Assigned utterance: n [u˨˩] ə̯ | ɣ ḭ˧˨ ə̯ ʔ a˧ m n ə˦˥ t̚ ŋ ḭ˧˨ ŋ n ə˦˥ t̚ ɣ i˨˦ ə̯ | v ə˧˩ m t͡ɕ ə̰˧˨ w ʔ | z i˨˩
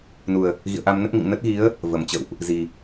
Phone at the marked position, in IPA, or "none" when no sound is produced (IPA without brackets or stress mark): u˨˩